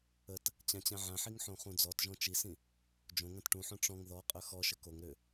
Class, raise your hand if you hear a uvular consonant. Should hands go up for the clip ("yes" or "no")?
yes